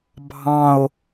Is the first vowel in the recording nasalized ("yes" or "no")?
yes